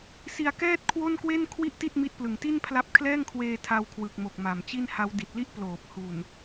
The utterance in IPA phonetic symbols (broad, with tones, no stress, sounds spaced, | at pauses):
s i˧ a̯ k ɛː˥˩ t̚ kʰ w o˥˩ n k w e˥˩ n kʰ w i˥˩ ʔ t i˥˩ t̚ m i˦˥ t̚ p l ɯ˨˩ ŋ t i˥˩ n pʰ l a˦˥ p̚ kʰ l ɛː˥˩ ŋ kʰ w eː˧ tʰ a˧ w kʰ w ɯ˨˩ k̚ m o˨˩ k̚ m a˨˩ m t͡ɕ i˥˩ n h a˦˥ w d i˨˩ t̚ l i˥˩ ʔ p l oː˨˩ p̚ h u˨˩ n